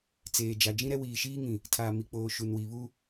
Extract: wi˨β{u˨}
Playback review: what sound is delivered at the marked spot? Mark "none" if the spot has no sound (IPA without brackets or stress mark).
u˦